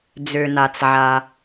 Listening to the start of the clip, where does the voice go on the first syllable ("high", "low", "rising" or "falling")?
low